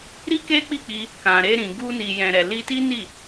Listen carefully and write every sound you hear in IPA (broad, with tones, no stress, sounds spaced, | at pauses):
ɾ i˦ k e˦ k͡p i˦˨ k͡p i˧ | k ã˨ ɾ e˧ ɾ ĩ˨ ɡ u˧ n i˨ j ɛ̃˨ ɾ ɛ˨ l i˧ t i˦ n i˦˨